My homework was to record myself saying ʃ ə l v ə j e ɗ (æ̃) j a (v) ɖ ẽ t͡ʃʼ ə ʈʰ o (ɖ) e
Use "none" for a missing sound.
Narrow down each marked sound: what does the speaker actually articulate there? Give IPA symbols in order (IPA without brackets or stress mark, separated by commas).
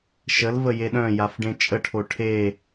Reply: œ̃, f, ʈʰ